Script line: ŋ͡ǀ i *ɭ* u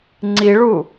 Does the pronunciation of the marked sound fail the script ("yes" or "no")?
no